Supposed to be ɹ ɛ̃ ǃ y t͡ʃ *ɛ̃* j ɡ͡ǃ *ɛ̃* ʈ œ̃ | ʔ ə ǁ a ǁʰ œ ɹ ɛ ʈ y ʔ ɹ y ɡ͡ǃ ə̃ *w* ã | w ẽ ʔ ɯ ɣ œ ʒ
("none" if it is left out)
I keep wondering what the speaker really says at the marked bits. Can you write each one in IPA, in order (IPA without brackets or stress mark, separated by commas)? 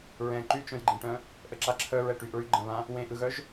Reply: œ̃, ẽ, β